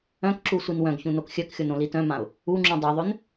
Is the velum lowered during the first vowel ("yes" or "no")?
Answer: yes